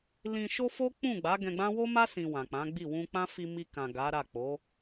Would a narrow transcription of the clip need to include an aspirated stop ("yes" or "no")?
no